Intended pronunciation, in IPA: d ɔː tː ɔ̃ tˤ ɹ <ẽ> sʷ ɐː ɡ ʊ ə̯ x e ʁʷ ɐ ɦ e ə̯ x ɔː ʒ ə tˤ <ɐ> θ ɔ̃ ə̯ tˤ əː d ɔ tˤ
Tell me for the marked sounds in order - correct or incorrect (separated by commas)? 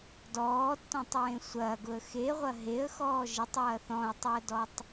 correct, incorrect